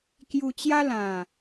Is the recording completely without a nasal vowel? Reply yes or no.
no